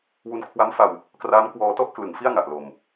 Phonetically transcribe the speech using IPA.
w u˧ n kʰ w a˦˥ m f a˧ w | k r aː˦˥ m k w ɔː˧ t ɔ˥˩ ʔ k l ɯ˨˩ ŋ f i˥˩ a̯ ŋ a˨˩ ʔ l o˨˩ m

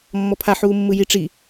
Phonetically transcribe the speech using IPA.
mː ɔ pʰ a ħ uː mː ɯ j i ʈ͡ʂ i

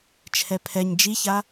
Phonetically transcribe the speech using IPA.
t͡ʃʰ ɛ pʰ ɛ ɲ d͡ʒ i ç a

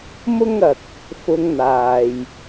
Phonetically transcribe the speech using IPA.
m ʊ˥ ŋ ɐ˨ k̚ | f ʊ˧ ŋ n̪ aː˨ j

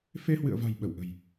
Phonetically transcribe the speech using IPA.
f e˧ h w ɨ̰˧˨ ə̯ v a̤˨˩ j ɓ ə˧˩ w ʔ ə̤˨˩ j

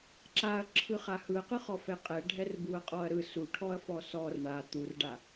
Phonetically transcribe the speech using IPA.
ǁ a ɐ̯ ǁʰ ɯ χ a h ɯ ɐ̯ q ɯ χ ɔ f ɛ qʼ ɛ ɖʱ ɛ r b u ɐ̯ qʼ ɔ ɐ̯ ɾ ɯ s u ʈʰ ɔ ɐ̯ f ɔ s ɔ r ɳ a t̪ u r ɖ a

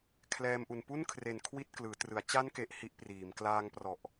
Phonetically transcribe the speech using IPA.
kʰ l ɛː˧ m ʔ u˨˩ n p u˥˩ n kʰ r e˨˩ n kʰ w i˥˩ t̚ k l ɯː˩˦ t r ɯ˩˦ a̯ t͡ɕ a˦˥ n k e˨˩ ʔ h i˦˥ ʔ p r iː˩˦ m k l aː˧ ŋ p r ɔ˨˩ ʔ

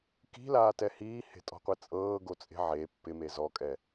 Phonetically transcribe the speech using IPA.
k i̤ l aː t ɛ h iː h e̤ tʼ ɔ̤ qʷ e t͡sʼ ɤː ɡ o t͡sʼ e̤ ʕ e pː ɪ m e z ɔ kʼ ɛ

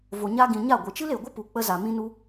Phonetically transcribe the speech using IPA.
v o˨ ɲ a˧ ɡ ĩ˨ ɲ a˦˨ ɡʷ ɨ˨ t͡ʃ ɨ˦ l e˨ ɡʷ ə˦ p u˨ k͡p ə˧ z a˨ m ĩ˧ n u˧

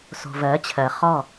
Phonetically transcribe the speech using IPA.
s o̤˨ v ɜ˨˦ t͡ɕʰ ɜ˨ χ ɔ˦˨

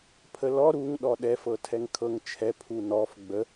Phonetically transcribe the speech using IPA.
pʰ ə l ɔ ɾ u ŋ ɗ ɔ ɗ ɛ f ɤ tʰ ɛ ŋ kʰ ɤ ŋ t͡ʃʰ ɛ pʰ u n ɔ f ɡ͡b ə

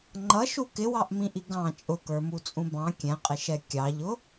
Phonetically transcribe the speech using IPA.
ŋ͡ǃ ʌ ʃ u k ɪ w ɑ ʔ m ĩ ʔ i ɡ ɑ̃ t͡ʃʼ ʊ k ə˞ m u t͡sʼ ũ b ɑ̃ kʲ ɛ̃ qʼ ɪ ʃ ɛ kʲ ɑ ʎ ʊ

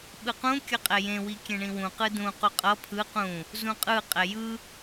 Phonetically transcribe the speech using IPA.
ɓ ɯ q ũ kʲ ʌ qʼ ɛ j ẽ w i kʲ ẽ ɳ ĩ w ũ q ɯ d ũ q u qʼ ʌ pʰ ɯ q ũ | z ũ qʼ ɯ qʼ ɛ j ɯ

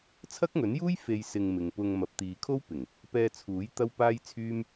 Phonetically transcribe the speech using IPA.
t͡sʰ ɐ˥ k̚ ŋ ɵ˨˥ n j uː˥ j f e˧ j s ɪ˧ ŋ m ɪ˨ ŋ p ʊ˧ ŋ m ɐ˨˥ p̚ t̪ iː˨ kʰ o˥ w p ɪ˨˩ ŋ | p ɛː˧ t͡sʰ uː˨˥ j t̪ ɐ˥ w p aː˥ j t͡sʰ yː˥ m

